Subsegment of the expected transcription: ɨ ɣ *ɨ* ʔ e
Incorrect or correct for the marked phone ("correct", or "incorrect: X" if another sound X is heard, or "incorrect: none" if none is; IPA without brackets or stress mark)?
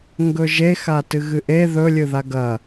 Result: correct